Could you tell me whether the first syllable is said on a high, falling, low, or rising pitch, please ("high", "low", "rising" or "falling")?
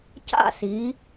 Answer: falling